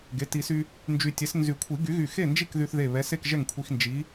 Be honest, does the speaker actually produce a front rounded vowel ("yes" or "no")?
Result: yes